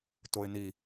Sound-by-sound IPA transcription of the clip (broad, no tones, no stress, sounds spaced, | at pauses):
t o ɪ̯ n i